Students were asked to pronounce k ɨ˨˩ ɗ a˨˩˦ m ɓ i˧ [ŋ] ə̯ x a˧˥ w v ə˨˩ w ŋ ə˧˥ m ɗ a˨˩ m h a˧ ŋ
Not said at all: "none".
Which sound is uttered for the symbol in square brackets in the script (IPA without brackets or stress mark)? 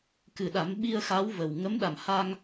none